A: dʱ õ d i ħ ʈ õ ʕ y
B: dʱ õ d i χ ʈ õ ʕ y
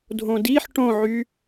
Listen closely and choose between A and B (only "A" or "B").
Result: A